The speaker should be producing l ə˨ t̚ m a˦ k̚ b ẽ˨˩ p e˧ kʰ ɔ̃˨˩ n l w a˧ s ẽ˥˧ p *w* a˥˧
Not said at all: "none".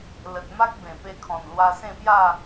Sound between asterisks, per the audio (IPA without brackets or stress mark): j